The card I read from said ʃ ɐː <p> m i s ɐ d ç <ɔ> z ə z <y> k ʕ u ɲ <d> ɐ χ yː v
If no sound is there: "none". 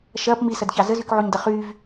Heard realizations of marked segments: p, ɑ, y, d

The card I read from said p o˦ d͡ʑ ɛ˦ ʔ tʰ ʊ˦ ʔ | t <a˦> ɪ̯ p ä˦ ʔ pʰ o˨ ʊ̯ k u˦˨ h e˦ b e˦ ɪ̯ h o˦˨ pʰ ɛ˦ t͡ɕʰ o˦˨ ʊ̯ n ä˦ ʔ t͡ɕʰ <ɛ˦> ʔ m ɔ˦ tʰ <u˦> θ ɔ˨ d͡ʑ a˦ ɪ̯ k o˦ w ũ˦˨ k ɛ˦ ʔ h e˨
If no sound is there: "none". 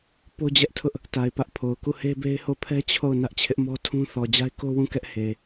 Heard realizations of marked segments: a˨, ɪ˦, ũ˦

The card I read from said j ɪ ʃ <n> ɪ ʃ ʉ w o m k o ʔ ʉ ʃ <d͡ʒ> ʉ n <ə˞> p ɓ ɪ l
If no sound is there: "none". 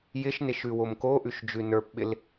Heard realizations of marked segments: n, d͡ʒ, ə˞

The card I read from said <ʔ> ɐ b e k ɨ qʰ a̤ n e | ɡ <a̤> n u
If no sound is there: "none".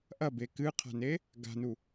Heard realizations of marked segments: ʔ, a̤

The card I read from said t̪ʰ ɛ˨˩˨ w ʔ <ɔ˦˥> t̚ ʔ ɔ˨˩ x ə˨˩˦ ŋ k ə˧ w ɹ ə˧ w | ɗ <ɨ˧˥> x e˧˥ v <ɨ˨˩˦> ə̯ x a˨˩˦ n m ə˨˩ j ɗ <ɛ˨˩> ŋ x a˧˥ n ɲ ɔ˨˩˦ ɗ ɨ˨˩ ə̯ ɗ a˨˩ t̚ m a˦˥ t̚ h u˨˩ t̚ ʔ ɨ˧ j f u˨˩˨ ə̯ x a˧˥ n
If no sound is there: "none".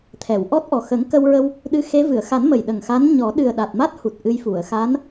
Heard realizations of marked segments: ɔ˦˥, ɨ˧, ɨ˨˩˨, ə˨˩

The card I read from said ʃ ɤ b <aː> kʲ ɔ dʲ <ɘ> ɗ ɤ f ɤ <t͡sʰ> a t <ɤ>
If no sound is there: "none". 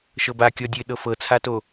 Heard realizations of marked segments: a, ɘ, t͡sʰ, o

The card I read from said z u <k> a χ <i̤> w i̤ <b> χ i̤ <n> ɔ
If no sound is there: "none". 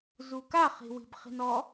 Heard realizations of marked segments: k, i̤, b, n

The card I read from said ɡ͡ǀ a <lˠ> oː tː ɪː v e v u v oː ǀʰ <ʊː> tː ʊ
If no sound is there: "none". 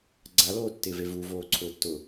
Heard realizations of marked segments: l, ʊː

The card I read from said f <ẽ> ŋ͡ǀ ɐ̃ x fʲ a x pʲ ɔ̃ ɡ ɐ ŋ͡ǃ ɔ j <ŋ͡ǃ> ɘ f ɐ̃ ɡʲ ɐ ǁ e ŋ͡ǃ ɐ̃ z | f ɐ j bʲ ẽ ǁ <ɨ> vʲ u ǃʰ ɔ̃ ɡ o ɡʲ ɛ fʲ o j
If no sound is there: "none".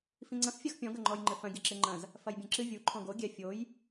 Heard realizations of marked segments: ĩ, ŋ͡ǃ, ɨ

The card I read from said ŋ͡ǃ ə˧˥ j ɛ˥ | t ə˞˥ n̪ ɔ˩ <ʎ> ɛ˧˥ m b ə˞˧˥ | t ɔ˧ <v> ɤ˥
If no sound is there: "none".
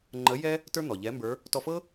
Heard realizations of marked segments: ʎ, f

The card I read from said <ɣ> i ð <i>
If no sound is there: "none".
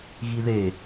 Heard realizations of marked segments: ɣ, e

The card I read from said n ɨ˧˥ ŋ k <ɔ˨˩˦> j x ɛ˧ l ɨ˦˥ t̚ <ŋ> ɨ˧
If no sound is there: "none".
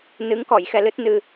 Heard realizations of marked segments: ɔ˨˩˨, n

